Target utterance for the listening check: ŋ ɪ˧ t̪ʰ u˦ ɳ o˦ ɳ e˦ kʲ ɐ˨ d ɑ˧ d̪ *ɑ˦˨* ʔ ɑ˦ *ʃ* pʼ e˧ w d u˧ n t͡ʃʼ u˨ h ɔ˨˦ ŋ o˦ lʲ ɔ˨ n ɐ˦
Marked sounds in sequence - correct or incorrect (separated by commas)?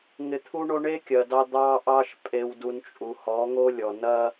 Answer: incorrect, correct